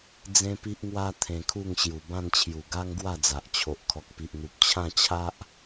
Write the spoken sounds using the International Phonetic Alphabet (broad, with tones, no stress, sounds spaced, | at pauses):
d͡z ẽ˦ p i˦ ʔ ŋ w a˦ t̪ʰ ẽ˧ kʰ u˥˧ ŋ ɕ j u˨˩ b ã˥˧ n t͡ɕʰ j u˨˩ ɡ a˦ ŋ ɡ w a˥˧ d͡z a˨ ʔ t͡ɕʰ o˨ ʔ kʰ ɔ˨ k̚ p i˨ ʔ n̪ u˨ p̚ t͡ɕʰ ã˥˧ t͡ɕʰ a˦ ʔ